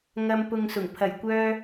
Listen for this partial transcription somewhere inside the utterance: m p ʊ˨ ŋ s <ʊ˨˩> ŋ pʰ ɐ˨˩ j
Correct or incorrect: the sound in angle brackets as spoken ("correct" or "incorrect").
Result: correct